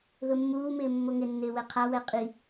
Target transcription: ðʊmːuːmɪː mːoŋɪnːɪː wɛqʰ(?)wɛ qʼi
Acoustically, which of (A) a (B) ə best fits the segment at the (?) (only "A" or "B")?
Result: A